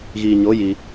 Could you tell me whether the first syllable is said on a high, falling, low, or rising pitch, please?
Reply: low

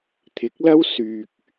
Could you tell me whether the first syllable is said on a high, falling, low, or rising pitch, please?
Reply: rising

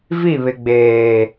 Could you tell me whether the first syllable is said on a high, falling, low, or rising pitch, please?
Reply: falling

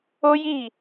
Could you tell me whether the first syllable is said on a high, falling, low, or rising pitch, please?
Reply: high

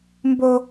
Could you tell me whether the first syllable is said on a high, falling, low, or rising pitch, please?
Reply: high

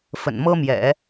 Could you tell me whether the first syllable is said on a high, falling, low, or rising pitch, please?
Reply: low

